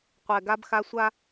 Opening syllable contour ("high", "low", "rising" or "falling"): low